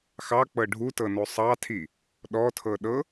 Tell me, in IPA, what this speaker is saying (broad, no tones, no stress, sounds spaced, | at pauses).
x ɑ k͡p ɤ ɖʱ u t ɤ n o sˤ ɑ tʰ i | ɗ ɔ tʰ ɤ ɗ ɤ